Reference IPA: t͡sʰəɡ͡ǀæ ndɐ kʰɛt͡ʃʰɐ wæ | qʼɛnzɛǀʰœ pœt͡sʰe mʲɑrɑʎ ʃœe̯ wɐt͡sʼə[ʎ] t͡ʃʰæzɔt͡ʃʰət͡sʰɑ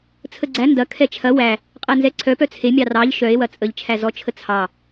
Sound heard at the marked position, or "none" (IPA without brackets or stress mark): ʎ